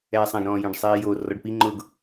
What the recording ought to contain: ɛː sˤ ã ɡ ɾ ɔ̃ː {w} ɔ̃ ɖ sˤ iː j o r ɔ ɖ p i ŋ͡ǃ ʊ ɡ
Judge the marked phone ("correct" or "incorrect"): incorrect